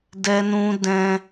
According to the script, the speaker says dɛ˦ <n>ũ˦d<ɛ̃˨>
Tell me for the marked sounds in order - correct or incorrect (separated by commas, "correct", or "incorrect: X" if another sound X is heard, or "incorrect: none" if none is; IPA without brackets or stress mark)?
correct, incorrect: ɛ̃˦